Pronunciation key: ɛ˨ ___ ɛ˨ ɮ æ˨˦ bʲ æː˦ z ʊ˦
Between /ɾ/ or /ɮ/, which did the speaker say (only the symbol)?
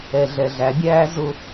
ɮ